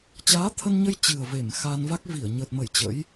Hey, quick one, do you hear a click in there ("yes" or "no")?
no